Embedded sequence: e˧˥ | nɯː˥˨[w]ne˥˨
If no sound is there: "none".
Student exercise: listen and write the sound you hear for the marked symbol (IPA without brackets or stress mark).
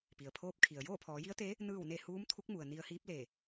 w